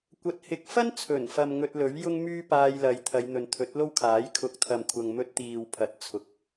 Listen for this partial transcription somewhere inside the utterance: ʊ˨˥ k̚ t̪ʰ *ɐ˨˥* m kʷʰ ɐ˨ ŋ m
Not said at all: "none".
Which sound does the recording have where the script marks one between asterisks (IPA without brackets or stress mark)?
ɐ˨